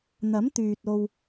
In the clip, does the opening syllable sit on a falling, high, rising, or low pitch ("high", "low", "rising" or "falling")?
rising